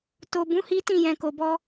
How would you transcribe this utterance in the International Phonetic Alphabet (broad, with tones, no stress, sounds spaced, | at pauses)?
t o˨ b ũ˨˦ h i˦ t ĩ˦˨ j ɛ̃˨ k o˨ b ɔ˧